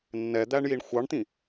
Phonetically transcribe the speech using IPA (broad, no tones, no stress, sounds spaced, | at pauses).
nː ɛ d̪ æ ɳ j i ɳ xʷ ɑ ɳ t̪ ĩ